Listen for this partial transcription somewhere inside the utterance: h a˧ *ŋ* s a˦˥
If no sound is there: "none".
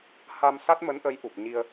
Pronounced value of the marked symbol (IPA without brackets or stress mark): m